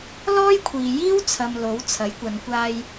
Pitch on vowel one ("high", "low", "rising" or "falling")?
high